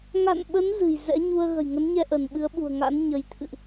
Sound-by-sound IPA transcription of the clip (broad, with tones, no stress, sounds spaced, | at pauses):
ŋ a̰˧˨ n ɓ ə˨˦ n z ɨ̤˨˩ j z ɛ̰˧˥ ɲ u˧ ə̯ ɣ ə̤˨˩ j ŋ ə˨˦ n ɲ ɛ˧ ʔ ə˧˩ n ɓ ɨ˨˦ ə̯ ɓ ṳ˨˩ ə̯ ŋ a̰˧˥ n ɲ ə˨˦ j t̪ʰ ɨ̰˧˨ ʔ